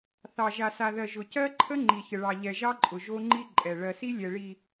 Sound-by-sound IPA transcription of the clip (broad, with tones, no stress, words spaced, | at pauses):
θɑ˨ʒa˨sa˨ðɜ˨ ʒʊ˨cɜ˦ǃʰə˦ ŋ͡ǃi˨çə˨ɭɑ˨ ʎɛ˨ʒɑ˦ǃʼʊ˨ ʒo˦ŋ͡ǃi˦ ǃʼɛ˨ ɭɜ˨si˦ lʲɛ˨ɭi˨